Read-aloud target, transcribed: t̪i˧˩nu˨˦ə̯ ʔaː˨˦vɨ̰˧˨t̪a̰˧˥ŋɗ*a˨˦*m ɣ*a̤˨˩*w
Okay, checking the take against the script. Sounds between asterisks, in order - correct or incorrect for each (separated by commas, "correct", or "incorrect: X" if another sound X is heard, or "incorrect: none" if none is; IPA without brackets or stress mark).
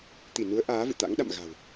incorrect: a̰˧˨, correct